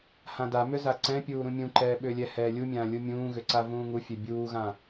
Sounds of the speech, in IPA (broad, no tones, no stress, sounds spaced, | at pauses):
h ã d a m ʏ z a ǀ ɛ̃ pʲ uː ɾ ũ mʲ ũ ǃ ɛː ɓ ʏː lʲ ɛ h ɛː lʲ u mʲ ãː lʲ u mʲ ũː ɣ ʏ ǀ a v ũː ŋ u fʲ ɛ bʲ uː ɣ ã